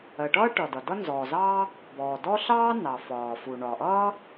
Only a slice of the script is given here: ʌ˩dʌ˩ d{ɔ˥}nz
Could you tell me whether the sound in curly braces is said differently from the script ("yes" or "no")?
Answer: yes